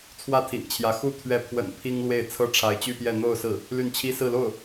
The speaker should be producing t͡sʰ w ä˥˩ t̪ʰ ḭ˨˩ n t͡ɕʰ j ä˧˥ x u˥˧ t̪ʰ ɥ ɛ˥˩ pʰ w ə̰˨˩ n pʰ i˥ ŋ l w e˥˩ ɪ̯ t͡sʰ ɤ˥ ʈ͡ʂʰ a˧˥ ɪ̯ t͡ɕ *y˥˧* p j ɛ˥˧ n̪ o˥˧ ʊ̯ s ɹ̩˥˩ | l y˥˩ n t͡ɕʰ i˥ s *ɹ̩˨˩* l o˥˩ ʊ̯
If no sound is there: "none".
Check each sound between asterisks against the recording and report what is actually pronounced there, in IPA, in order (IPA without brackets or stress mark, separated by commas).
y˥˧, ɹ̩˥˧